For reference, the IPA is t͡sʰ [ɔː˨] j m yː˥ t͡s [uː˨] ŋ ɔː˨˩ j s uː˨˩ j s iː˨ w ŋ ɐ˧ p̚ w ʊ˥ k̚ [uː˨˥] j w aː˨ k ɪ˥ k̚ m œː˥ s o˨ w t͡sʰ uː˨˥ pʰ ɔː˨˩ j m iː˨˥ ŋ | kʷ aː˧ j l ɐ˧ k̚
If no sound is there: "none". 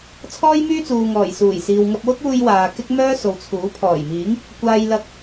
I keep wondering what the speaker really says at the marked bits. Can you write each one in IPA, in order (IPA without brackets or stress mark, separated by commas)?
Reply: ɔː˥, uː˨, uː˧